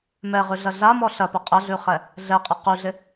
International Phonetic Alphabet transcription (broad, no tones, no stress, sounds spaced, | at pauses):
m ɛ ʁ ʉ ɮ ɐ ɮ a m ɔ ɬ ɐ p ɐ qʼ ɐ ɮ ʉ χ ɛ | ɮ ɛ qʼ ɐ q ʉ ɮ ɪ